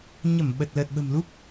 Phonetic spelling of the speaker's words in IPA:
ɲ ə˧˩ m ɓ ə˨˩ t̚ l əː˨˩ t̚ ɓ ə̤˨˩ m l u˦˥ p̚

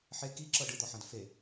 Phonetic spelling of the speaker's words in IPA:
ħ e k i ǁ ɤ ɖ ɯ d̪ ɔ ħ ã d f e

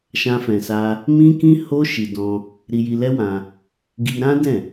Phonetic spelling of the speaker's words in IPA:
ʃ ã˧ f ɛ̃˨ s a˧ | m ĩ˦ k ĩ˦ h o˦ ʃ i˧ d ɔ̃˧ | ɾ i˧ j i˧ l ɛ˦ w ã˧ | ɡ i˧ ɾ ã˦ d ɛ̃˦˨

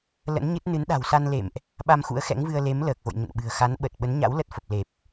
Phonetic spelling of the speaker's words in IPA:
l ə̰˧˥ n ɲ ɨ˦˥ t̚ n ɨ˨˦ n ɗ a̤˨˩ w s a˧ n l ḛ˧˨ m ʔ | ɓ a˧ m x ṵ˧˥ ə̯ x ɛ̰˧˥ ŋ v ɨ˧ ə̯ l e˨˦ m l əː˨˩ k̚ v o̰˧˨ j ɲ ə̰˧˨ n ɓ ɨ̤˨˩ ə̯ x a˨˦ n ɓ ə˨˩ t̚ ɓ ə˨˦ n ɲ a̰˧˥ w l ə˦˥ t̚ f ə˨˩ p̚ l e˨˩ p̚

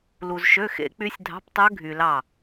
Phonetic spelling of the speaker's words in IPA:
l u˨ z ʃ ø˧˥˧ x ḛ˦˥ k͡p y˦˥ sʲ dʱ ɑ̤˧˥˧ p tˤ ø˦˥ ɡʱ y˨ l ɑ˥˩

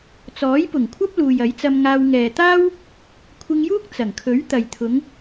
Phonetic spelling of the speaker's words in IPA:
t͡s ɔː˨˥ j p ʊ˨˩ ŋ kʷʰ ɐ˥ p̚ l uː˨ j ɐ˨˥ j t͡s ɐ˧ m ŋ aː˧ w ŋ ɛː˨ t̪ aː˥ w | kʷʰ ɪ˧ ŋ j uː˥ k̚ t͡s ɐ˨˩ ŋ kʰ ɵ˨˥ ɥ t̪ ɐ˨ j t̪ʰ ʊ˨˧ ŋ

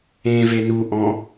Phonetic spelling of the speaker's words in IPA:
ẽ v e n u ʔ ɔ̃

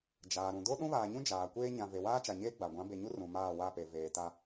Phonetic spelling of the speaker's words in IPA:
d͡ʒ aː˨ ɾ ũ˨ d o˦ ɗ ũ˦ β aː˨ ɲ ũ˦ d͡ʒ aː˨ kʷ eː˦ ɲ ã˨ v e˨ w aː˦ t͡ʃ a˨ ɲ eː˦ ɡ͡b a˨ ɡʷ ã˨˦ b e˨ ɲ u˦ r ũ˨ m aː˦˨ w a˦˨ p e˨ v eː˨ t a˦

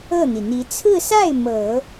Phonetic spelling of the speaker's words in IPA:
ɤ˥˩ n̪ i˩ n̪ i˧˥ t͡sʰ ɹ̩˥˧ s a˥˩ ɪ̯ m ɤ˨˩˦

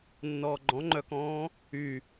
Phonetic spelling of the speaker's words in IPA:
nː ɔː ɡ͡ǃ ɔ̃ ŋ͡ǃ œ k ɔ̃ː | y

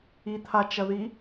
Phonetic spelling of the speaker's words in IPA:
i t̪ʰ a t͡ʃ ɐ ð i

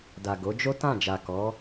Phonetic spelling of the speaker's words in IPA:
d a˨ ɡ o˨˦ d͡ʒ o˦ t ã˦˨ d͡ʒ a˨ k ɔ˨˦

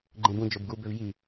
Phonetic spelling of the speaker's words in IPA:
ɡ͡ǃ ẽ b ũ d͡ʒ o b ɡ u b ø v j i

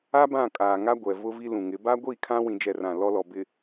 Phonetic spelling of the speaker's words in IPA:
a˦ b ã˦˨ kʼ aː˨ ŋ a˦ ɡʷ ɛ˨ v ʊ˦ v i˦ l ũ˨ ŋ ɪ˨˦ b a˦ ɡʷ i˦˨ kʰ ã˦ w ĩ˦ d͡ʒ ɛ˦˨ r ã˦˨ l ɔ˦ l ɔ˨ b ɪ˨

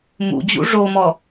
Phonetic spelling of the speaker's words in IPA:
m ṵ d͡ʑ ṵ ʐ o m ɔ

